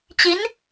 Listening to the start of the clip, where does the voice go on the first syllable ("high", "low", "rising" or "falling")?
rising